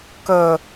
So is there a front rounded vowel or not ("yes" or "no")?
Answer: no